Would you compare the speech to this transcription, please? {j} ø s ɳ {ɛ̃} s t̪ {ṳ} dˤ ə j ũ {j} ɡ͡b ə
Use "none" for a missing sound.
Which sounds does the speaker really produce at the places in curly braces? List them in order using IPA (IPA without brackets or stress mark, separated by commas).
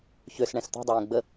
ç, ɛ̃, ṳ, none